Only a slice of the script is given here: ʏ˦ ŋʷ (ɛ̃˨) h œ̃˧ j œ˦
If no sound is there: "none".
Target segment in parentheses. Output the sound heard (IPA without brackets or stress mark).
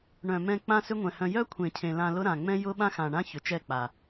ɛ̃˨